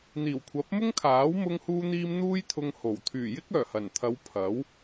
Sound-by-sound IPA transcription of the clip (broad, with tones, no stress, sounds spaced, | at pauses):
n̪ iː˨˩ w kʷʰ ɐ˨˥ p̚ m ʊ˥ ŋ kʰ aː˨˥ w m ʊ˧ ŋ h uː˧ n̪ iː˧ m n̪ uː˥ j t̪ʰ ʊ˧ ŋ h o˨˩ w t̪ʰ yː˨˩ j ɪ˥ k̚ œː˨˩ h ɐ˨˩ n t̪ʰ ɐ˨˧ w pʰ ɐ˨˥ w